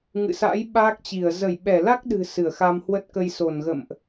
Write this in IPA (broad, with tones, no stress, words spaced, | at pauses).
ŋɨ̰˧˨sa̰˧˥j ɓaː˦˥k̚t͡ɕi˧˩ə̯ zə˧˩jɓɛ˧˩la˦˥k̚ɗɨ̤˨˩ sɨ˧˩ə̯xa˧mhwə˦˥t̚kə˧j so˧˩nɣə̰˧˨mʔ